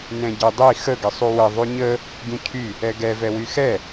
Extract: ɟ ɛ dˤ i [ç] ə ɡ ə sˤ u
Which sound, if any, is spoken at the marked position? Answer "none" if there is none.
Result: x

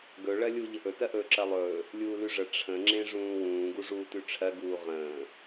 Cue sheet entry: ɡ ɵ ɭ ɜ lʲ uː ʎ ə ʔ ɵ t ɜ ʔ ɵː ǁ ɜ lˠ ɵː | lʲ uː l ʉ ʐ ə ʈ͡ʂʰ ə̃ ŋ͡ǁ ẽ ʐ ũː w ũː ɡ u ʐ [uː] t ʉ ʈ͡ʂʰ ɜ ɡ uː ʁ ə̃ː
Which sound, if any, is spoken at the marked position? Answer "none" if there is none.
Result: uː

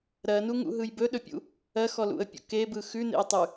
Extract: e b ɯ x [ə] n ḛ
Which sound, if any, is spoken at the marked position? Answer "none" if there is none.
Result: ʉ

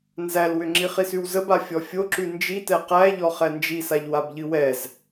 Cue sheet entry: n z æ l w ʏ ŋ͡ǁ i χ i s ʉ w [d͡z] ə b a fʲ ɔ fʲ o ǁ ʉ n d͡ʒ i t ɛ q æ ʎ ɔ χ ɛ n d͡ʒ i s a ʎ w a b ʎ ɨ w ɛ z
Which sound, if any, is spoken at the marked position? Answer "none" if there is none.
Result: z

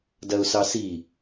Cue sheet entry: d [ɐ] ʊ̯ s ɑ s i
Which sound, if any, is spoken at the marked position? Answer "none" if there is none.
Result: ɐ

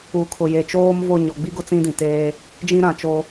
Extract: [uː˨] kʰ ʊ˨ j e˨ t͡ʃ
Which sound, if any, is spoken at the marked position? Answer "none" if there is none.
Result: uː˨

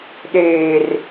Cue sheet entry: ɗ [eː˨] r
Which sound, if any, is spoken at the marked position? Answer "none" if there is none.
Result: eː˨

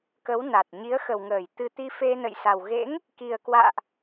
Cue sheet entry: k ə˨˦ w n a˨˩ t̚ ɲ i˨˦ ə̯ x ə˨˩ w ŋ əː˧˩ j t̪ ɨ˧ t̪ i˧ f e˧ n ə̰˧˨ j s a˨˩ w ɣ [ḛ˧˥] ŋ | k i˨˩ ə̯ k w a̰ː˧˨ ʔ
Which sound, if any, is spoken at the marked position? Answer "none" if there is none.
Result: ḛ˧˥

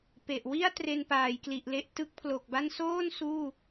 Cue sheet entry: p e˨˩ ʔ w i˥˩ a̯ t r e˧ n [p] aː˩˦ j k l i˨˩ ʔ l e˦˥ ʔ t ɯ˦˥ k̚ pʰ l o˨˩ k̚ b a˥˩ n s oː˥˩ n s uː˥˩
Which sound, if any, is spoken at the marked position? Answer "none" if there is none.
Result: p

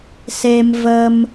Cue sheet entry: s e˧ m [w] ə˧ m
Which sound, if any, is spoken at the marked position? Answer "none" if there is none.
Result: v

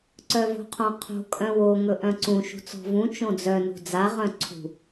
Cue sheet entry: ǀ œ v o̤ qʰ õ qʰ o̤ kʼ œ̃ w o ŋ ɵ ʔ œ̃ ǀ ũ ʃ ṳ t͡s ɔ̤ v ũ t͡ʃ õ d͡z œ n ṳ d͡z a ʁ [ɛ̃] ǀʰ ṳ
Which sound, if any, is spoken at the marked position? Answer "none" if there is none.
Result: œ̃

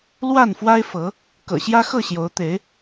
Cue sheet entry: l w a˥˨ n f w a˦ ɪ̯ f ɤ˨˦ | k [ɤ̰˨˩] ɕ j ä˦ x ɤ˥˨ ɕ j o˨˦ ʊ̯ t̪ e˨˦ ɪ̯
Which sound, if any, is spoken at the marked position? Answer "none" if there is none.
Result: ɤ̰˨˩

